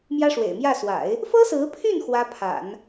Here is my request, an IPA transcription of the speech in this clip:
m j ä˥ ʂ w ḛ˨˩ ɪ̯ m j ä˥˩ s w a̰˨˩˦ ɪ̯ | f ɤ˥ s ɹ̩˧˥ pʰ y˥˩ n x w ä˥ pʰ a̰˨˩˦ n

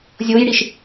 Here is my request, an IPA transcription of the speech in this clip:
zʲ o j ɽ i ʃ

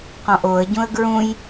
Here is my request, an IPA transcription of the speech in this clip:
q ɔ̃ ʔ o ə̯ ɟ ũ ə̯ ɡ ɹ ũ j

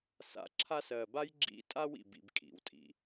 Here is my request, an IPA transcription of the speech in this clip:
s a̰˨ ǁʰ a˦ s ɜ˨ b a˥ j ɡ͡ǁ ḭ˦ tʼ a˥ w ḭ˩ b ḭ˨ b kʼ ḭ˩ w tʼ ḭ˨

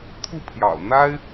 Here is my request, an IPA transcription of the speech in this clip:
t̪ʰ u˥˩ pʰ j ɑ̰˨˩ ʊ̯ n̪ a˥ ɪ̯

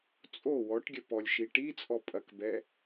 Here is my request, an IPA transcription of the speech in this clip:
t͡sʼ o w ɔ ʈ ɡʲ ɐ p ɔ lʲ ʃ i ʈ i t͡sʼ ɔ pʼ ɐ k b ɛ

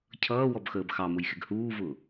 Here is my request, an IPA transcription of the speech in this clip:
cʰ ʌː w ɔ b x əː b x ɑ m ʊ j x ɪ ɡ h uː v ʊː

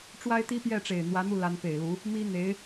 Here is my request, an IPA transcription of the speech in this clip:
ʈ͡ʂ w a˥ ɪ̯ t̪ i˥ p j ɛ˥˩ ʈ͡ʂ e˨˩ ɪ̯ n̪ w ä˧˥ n̪ u˥˩ l a˧˥ n p e˨˩ ɪ̯ l u˧˥ | m i˥ n̪ e˧˥ ɪ̯

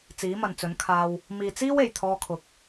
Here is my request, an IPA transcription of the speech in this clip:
t͡s iː˨˥ m ɐ˨ n t͡s ɵ˨˥ n kʰ aː˧ w | m iː˨ t͡s iː˥ w e˨˩ j t̪ʰ ɔː˧ kʰ ʊ˨˥ k̚

